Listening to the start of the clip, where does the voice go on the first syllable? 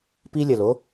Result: high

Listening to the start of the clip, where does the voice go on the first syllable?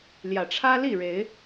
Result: low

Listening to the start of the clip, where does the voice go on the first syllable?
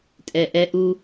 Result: low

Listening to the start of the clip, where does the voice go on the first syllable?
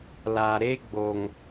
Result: low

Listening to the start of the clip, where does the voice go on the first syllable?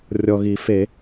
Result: low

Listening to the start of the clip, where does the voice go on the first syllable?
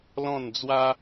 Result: falling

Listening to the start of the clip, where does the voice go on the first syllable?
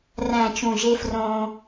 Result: low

